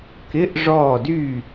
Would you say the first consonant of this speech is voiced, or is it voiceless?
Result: voiceless